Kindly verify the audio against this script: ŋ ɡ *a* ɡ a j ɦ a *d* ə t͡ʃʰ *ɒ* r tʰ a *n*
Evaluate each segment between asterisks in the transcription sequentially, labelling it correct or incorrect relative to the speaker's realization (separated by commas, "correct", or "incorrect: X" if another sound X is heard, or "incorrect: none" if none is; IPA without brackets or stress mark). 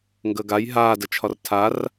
incorrect: ə, correct, correct, incorrect: r